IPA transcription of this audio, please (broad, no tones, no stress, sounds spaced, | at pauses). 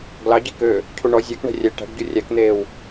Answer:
ɡ l ɑ ɟ i k ø | cʰ u ɳ ɔ zʲ æ k ɳ ɛ̤ rʲ ɛ ʈ æ̤ ɖ ɟ u rʲ æ k n̪ eː w